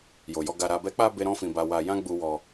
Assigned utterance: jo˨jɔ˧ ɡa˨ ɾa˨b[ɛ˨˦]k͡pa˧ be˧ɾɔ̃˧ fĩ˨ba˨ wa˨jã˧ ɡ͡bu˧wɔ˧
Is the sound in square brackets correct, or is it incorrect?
correct